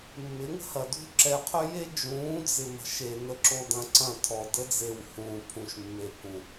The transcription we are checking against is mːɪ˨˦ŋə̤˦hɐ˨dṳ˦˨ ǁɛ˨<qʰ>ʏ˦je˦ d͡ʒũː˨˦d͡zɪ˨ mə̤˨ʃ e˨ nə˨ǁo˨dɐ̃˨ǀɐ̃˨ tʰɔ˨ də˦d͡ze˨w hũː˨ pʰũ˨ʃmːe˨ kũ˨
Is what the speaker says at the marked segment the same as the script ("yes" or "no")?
yes